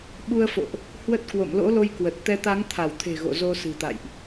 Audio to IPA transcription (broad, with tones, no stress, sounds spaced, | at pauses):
ɓ u˧ ə̯ f o̰˧˨ ʔ | h w ə˦˥ t̚ k w o̰˧˨ m l o̰˧˥ l o˧ j k w ə˨˩ t̚ t̪ ɛ˧ t̪ a˨˦ ŋ t̪ʰ a˧˩ w t̪ʰ e̤˨˩ ɣ o̰˧˨ z o˧ s ɨ̤˨˩ t̪ a̰˧˨ j ʔ